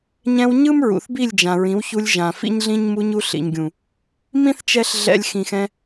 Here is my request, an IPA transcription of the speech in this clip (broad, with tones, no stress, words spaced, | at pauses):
ɲɛ̃˧w ɲɯ˦mɹṵ˨θ bi˦˨lʲd͡ʒã˨ɹĩ˨˦wçu˧lʲ ʒã˨fḭ˦ɲɮĩ˦ɲ mu˧ɲu˧ɬḭ˨ɲɡʲũ˨ | mĩ˦θt͡ʃɛ˧ɬ ɮɛ̰˧lʲ xĩ˨xɛ̃˧